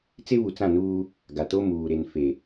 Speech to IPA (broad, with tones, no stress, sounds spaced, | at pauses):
t͡s e˦ β u˨ t͡s ã˦˨ n uː˦ | ɡ a˨ t o˦ m uː˨ ɾ e˨ n f e˨